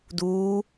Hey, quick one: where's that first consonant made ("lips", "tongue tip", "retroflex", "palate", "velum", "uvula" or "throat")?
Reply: tongue tip